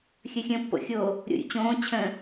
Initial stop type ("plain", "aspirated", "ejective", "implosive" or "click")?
plain